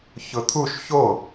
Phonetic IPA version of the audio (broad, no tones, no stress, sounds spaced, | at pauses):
ç ʊ t̪ʰ u ʃ ç o